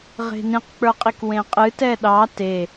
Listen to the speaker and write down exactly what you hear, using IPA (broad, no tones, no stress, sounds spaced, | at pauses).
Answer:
ʁ e̤ n ĩ q k͡p ə˞ qʼ i k w ẽ qʼ ɨ t ɛ ɗ ɑ t e